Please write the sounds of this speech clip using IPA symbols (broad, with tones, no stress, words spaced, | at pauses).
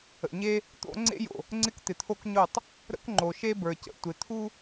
ə̰˨ɲe˦ | t̪o̰˦ ŋ͡ǀḛ˦jo̰˨ | ŋ͡ǀɪ˦kt̪ɪ˨t̪ʰo˦kɲo˦˨tˤ | ɾə̰˦kŋ͡ǃo˨ʃe˦ bə˞˨cə̰˨ tʷɪ˨t̪ʰu˦